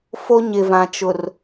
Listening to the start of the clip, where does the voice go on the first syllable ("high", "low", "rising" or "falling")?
high